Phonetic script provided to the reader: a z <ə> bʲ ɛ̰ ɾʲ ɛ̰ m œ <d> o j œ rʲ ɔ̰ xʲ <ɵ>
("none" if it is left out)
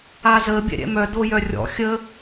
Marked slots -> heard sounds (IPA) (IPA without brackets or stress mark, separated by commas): ə, d, ə